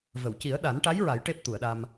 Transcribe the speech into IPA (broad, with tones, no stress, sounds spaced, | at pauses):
v ə˨˩˨ w c i˨˩˦ ə̯ ɗ a˨˩˦ n ʈ a˧˥ j ɹ a˨˩˦ j ʈ e˦˥ p̚ t̪ u˨˩˨ ə̯ ɗ a˧ m